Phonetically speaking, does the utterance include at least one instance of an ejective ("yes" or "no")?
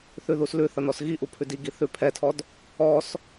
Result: no